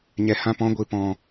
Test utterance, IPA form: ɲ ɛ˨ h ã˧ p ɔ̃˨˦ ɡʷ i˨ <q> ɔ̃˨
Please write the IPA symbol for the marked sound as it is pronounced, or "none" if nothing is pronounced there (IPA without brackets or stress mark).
p